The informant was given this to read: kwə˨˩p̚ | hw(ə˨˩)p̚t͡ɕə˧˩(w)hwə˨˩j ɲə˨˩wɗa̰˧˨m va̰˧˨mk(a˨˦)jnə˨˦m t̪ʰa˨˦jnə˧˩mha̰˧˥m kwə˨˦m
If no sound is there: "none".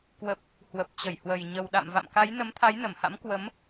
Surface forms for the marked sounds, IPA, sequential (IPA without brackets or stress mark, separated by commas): ə˨˩, j, a˨˦